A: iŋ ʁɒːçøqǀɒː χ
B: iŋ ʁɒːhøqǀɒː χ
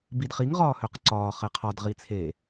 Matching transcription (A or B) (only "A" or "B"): B